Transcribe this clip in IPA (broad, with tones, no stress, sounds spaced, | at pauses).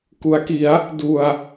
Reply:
k u˩˦ a̯ k i˩˦ a̯ | d u˨˩ a̯